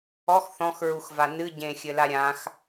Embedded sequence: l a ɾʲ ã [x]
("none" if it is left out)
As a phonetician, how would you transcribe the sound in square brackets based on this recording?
x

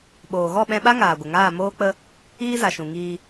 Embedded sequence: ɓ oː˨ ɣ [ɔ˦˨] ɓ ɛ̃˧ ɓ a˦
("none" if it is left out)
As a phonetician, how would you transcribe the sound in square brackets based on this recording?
ɔ˦˨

